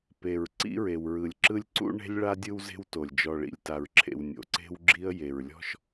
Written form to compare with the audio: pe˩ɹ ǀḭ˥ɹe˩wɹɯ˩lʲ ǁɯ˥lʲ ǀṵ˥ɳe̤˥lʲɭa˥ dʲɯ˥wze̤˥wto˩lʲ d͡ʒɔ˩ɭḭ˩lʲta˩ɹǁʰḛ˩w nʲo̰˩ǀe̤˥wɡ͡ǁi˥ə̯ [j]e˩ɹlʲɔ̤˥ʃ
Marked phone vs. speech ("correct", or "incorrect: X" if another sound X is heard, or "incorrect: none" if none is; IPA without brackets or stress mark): correct